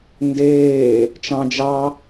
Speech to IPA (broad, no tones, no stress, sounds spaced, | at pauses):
n d eː | t͡ʃ ɑ̃ d͡ʒ ɑ